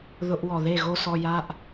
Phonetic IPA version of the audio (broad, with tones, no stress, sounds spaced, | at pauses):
ð ʊ˧ ʔ w ɔ˨ ð e˦˨ ɣ o˦ s ɔ˧ j a˦ ʔ